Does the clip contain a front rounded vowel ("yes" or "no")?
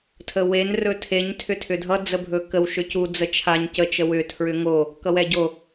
yes